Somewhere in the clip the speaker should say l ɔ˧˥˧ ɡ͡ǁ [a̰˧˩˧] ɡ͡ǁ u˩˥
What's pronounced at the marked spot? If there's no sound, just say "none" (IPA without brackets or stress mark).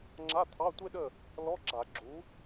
a˧˩˧